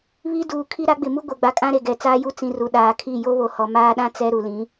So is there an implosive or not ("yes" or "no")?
yes